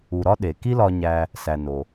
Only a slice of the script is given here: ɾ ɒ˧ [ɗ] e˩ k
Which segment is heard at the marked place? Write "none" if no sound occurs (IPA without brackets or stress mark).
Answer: ɗ